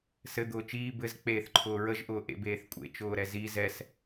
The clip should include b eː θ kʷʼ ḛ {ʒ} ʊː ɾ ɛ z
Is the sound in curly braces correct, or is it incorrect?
incorrect